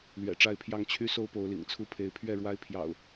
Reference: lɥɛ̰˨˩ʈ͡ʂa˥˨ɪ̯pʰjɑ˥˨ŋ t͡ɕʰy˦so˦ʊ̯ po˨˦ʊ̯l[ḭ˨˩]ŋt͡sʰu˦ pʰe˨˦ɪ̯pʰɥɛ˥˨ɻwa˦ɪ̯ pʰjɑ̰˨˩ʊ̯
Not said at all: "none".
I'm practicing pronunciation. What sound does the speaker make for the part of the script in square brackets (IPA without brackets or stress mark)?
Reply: ḭ˨˩